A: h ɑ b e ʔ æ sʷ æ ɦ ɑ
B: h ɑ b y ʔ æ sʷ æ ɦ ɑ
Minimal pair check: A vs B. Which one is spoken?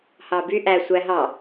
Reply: B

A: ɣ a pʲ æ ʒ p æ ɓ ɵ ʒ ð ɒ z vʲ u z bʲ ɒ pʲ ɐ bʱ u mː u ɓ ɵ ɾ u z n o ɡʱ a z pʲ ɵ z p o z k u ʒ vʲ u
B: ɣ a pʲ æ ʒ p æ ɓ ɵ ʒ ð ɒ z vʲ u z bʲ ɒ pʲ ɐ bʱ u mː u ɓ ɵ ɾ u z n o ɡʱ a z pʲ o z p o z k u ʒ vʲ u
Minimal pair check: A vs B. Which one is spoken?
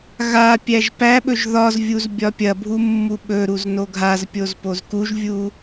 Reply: B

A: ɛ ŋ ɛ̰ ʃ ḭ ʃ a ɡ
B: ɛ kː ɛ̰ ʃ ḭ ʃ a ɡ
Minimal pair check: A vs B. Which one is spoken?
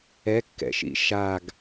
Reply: B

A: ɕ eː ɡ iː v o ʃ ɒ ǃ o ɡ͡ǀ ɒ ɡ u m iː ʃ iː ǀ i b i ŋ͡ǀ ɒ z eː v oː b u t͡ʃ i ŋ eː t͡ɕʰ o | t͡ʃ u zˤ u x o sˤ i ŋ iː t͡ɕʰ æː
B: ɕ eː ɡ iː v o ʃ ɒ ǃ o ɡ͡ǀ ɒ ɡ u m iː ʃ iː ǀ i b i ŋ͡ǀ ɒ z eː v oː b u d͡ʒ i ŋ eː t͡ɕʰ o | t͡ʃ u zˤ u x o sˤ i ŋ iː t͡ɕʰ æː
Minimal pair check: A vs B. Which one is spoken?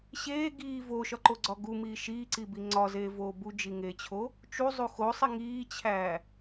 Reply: B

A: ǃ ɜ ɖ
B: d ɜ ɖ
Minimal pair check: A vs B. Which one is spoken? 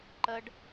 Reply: A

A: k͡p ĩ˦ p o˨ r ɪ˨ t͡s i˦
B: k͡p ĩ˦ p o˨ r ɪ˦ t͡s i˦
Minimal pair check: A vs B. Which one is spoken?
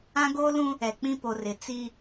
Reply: A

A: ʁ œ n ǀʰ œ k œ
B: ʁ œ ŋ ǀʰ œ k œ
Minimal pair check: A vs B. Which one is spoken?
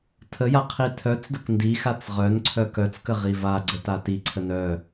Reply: A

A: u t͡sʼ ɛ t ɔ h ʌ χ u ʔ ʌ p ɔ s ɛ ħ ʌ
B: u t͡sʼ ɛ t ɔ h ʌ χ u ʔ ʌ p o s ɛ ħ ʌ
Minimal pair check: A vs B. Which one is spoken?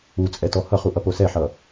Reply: B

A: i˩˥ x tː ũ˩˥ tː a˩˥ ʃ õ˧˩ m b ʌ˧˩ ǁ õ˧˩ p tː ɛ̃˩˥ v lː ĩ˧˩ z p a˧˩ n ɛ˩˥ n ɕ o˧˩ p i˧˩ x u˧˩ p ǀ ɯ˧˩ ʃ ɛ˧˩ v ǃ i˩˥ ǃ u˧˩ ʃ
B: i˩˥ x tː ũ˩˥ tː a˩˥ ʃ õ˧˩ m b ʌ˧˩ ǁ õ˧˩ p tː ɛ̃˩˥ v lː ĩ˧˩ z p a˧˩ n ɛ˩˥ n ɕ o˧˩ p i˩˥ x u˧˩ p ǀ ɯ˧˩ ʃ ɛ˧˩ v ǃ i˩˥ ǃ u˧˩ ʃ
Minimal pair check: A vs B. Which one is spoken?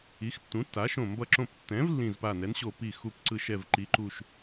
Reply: A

